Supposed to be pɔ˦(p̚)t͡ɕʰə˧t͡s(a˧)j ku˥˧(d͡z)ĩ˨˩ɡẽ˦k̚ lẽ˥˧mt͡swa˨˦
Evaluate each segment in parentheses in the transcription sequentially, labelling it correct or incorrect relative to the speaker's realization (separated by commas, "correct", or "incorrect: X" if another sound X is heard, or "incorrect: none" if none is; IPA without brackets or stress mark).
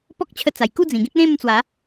incorrect: k̚, incorrect: a˨˩, correct